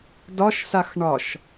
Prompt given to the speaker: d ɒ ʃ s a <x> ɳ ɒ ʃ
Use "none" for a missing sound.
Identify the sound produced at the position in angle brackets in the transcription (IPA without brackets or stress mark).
x